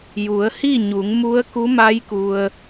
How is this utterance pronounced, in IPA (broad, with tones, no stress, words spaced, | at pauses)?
ju˩˧ə̯hi˥˨ɲu˩˧ŋ mu˧˥ə̯ku˧˥ma˧˥jku˩ə̯